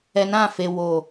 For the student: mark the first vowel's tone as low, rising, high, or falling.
low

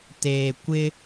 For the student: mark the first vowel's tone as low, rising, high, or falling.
low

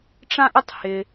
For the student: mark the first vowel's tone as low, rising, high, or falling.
high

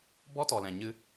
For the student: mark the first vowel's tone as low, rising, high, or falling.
high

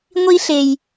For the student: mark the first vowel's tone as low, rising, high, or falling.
high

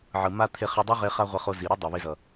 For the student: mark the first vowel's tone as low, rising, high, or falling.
low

